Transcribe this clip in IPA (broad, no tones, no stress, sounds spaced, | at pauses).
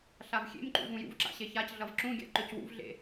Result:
ɬ a v xʲ ḛ m ǃ ṵ v ũ j ṵ v ǁ a̰ ɕ e ç a c ɮ ʌ v ǁ ũ ɡʲ a̰ ǃ ø c w ṵ v ɮ ḛ